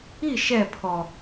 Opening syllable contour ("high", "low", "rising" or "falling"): falling